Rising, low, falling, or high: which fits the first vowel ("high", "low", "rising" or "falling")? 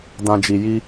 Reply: low